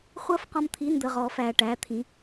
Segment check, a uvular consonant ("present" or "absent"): present